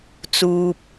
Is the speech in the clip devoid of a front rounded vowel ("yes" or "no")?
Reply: yes